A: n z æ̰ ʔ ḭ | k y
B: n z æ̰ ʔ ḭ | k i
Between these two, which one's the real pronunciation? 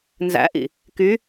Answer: A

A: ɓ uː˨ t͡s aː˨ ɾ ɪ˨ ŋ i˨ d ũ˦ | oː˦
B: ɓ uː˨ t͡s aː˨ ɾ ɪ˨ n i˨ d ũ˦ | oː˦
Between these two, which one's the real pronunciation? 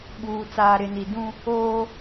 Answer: B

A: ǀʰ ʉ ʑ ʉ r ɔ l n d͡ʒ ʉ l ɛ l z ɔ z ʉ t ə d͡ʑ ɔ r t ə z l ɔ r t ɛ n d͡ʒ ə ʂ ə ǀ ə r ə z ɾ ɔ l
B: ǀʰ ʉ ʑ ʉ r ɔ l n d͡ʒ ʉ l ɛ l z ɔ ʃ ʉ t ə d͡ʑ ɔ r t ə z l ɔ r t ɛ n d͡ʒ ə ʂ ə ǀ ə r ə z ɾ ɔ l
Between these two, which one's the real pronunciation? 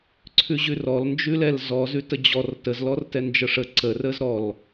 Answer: A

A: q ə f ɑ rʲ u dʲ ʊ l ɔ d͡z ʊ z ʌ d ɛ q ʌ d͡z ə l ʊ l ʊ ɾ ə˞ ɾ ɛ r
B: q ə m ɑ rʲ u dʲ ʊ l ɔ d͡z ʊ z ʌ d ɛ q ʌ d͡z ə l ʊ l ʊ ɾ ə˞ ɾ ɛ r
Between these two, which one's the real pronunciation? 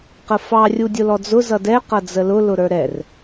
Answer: A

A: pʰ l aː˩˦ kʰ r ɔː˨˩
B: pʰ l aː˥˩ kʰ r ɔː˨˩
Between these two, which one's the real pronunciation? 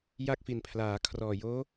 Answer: A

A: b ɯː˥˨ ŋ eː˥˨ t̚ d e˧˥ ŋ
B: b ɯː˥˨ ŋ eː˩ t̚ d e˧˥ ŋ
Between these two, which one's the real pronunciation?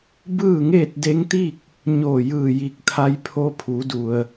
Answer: A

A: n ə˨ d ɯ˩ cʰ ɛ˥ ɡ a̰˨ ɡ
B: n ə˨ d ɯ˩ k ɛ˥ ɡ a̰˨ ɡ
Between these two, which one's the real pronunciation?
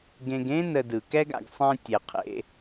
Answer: B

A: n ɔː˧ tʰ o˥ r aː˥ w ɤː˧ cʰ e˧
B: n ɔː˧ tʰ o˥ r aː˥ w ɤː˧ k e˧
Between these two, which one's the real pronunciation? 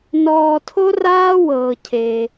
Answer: A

